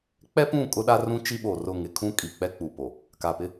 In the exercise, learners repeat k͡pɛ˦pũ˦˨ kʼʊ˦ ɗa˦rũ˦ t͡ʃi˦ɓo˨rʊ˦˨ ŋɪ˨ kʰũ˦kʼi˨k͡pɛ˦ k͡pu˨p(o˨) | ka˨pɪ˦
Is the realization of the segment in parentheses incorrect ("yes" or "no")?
no